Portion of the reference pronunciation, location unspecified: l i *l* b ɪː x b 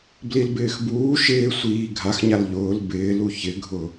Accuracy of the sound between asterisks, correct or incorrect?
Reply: correct